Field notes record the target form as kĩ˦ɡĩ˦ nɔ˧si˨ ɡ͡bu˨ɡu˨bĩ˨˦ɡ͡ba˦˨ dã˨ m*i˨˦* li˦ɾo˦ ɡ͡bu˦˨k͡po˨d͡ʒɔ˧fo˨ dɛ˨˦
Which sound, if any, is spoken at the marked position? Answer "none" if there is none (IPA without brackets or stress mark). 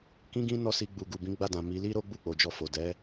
i˨˦